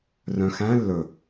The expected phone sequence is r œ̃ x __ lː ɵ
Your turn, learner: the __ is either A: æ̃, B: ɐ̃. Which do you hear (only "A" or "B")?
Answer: A